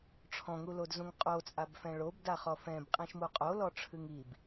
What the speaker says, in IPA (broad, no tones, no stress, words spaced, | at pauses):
ʈ͡ʂʰɔ̃ŋulod zũŋqʼot͡sʼab fɛ̃ɭobdaχɔ fɛ̃bqʼĩʃmu qʼolɔʈ͡ʂʰɨŋ ib